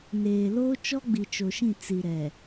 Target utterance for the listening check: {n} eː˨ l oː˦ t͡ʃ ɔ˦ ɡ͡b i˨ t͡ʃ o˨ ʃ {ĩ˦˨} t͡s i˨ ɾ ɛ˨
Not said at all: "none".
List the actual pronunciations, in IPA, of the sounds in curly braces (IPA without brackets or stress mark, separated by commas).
n, ĩ˦˨